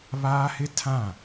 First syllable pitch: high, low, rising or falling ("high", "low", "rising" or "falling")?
high